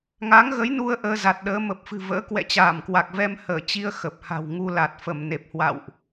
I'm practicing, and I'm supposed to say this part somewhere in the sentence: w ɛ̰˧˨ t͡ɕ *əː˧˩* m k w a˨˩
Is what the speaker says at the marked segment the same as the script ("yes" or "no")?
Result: no